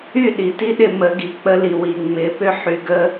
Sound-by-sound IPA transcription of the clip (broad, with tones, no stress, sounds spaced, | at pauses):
y˦˨ ɗ i˨ t i˦ ɗ ɪ˧ m ə˨˦ ɡ i˨ k͡p ə˧ l i˨ w i˨ ŋ͡m ɪ˨˦ p ʏ˦ ħ y˧ ɡ ə˦